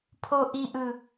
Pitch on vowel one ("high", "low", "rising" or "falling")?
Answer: high